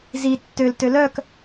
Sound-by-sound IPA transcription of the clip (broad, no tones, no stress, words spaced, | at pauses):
zi tːøltø lœk